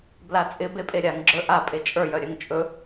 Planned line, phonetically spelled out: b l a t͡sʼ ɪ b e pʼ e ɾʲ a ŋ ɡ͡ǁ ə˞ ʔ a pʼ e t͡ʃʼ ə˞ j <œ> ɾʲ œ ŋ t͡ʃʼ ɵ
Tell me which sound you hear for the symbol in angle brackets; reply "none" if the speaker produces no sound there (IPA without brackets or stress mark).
œ